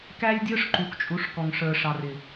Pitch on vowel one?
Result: high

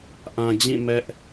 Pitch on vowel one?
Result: low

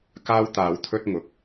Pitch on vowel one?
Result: high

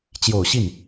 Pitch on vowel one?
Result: low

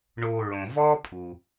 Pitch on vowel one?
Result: low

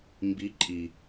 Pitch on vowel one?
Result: rising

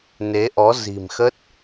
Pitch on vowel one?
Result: rising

